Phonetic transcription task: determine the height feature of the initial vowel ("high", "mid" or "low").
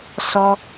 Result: mid